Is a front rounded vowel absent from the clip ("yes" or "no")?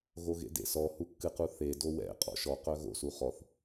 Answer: no